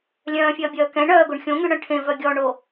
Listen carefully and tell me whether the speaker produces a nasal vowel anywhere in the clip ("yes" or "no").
yes